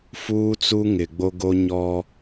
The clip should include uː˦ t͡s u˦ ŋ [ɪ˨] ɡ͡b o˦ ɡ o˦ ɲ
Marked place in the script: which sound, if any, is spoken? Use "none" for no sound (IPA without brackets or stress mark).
ɪ˨